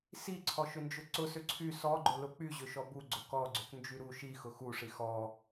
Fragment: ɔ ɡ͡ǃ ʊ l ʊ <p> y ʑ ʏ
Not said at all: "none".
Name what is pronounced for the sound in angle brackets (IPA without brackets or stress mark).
k͡p